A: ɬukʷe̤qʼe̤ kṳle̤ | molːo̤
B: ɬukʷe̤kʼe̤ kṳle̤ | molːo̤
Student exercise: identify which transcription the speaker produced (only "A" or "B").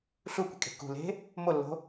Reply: B